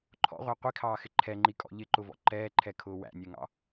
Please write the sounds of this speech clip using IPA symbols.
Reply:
ǃʰ ɔ̰ ʁʷ æ qʷ i kʰ ɑː x ɪ ǃʰ ɛ ŋ͡ǃ i kʼ ɔ̰ ʎ ɪ ǃ ʊ v ɔ̰ ǃ ɛː ǃʰ ɛ kʰ ʊː w æ̰ nʲ ɛ ŋ ɑ̰

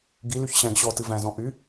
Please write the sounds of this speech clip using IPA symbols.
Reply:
ɡ i l y ç ɕ æ̃ ɡ ɕ ɔ t ɨ v æ̃ z ɔ̃ ʔ y

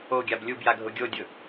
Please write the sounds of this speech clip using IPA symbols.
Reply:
o ɡʲ a b lʲ u b j a ɡʱ ʊ ɡʲ o dʲ ʊ

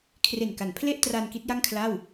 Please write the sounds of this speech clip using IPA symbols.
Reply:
kʰ r e˨˩ n k a˩˦ n pʰ l e˥˩ ʔ t r a˧ n k i˦˥ t̚ j a˥˩ ŋ kʰ l a˥˩ w

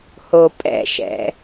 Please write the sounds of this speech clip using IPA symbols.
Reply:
h o pʼ ɛ̰ ʃ ɛ̰

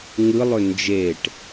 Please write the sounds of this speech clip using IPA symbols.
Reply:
ŋ ɯ lˠ ɵ n d͡ʒ e ʈ

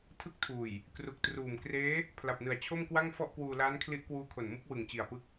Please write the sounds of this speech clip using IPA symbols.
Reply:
tʰ ɯ˦˥ k̚ tʰ uː˨˩ j | k r u˨˩ k̚ t r uː˨˩ m k r eː˦˥ | pʰ l a˨˩ p̚ n ɯ˨˩ a̯ t͡ɕʰ o˥˩ m k w a˥˩ ŋ f ɔ˥˩ ʔ k w uː˧ l aː˦˥ n kʰ l i˦˥ ʔ k w uː˦˥ kʰ o˨˩ n m u˥˩ k̚ w ɯ˨˩ ŋ t͡ɕ i˨˩ a̯ p ɯ˦˥ k̚

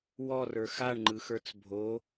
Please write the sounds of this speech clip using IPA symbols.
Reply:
w ɔ r ə˞ x a ɳ ŋ͡ǃ ɯ x ə˞ t͡s bʱ o

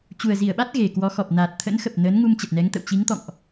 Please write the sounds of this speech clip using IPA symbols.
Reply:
t͡ɕ u˨˩ ə̯ z i˧˩ ə̯ ɓ a˦˥ t̚ ɣ e˨˩ k w ɔ˨˦ x ɔ˨˩ p̚ n aː˨˩ t̚ t̪ʰ ə̰˧˥ n x ə˨˩ p̚ n əː˨˦ n ŋ u˧ m t͡ɕ ə˨˩ t̚ n ɛ˨˦ ŋ t̪ ə̰˧˨ w t͡ɕ i˨˦ ŋ t̪ ɔ̰˧˨ ŋ ʔ

